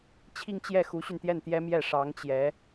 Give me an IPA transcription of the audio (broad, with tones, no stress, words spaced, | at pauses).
t͡ɕʰi˥˧ŋt͡ɕjɛ˥˩ xu˧˥ɕy˧nt̪jɛ˥˩n t̪jɛ˥mjɛ˥˩ ʂɑ˧˥ŋt͡ɕjɛ˧˥